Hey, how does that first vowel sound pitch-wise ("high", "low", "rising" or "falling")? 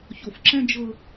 low